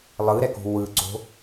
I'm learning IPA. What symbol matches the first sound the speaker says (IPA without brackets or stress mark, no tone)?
lˠ